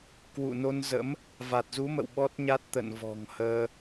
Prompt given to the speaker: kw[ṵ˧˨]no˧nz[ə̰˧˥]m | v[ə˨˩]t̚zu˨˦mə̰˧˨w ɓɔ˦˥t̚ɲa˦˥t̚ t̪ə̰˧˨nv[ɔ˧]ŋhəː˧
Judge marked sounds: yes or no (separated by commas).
yes, yes, no, no